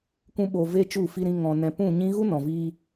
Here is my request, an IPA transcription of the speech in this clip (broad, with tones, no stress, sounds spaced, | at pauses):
kʷ ũ˦ ɓ oː˧ v eː˦ t͡ʃ u˦˨ f i˧ ɾ ĩ˧ ŋ ɔ̃˧ n ɛ̃˧ p ũ˦˨ ɲ ĩ˦ ɣ u˦ n ɔ̃˨ v iː˧